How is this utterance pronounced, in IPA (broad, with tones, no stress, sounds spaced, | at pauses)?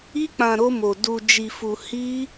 i˦ k͡p ã˧ ɾ o˦ m o˧ d u˧ d͡ʒ i˧ f u˧ h i˦